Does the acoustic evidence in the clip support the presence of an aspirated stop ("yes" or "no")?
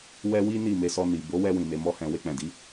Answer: no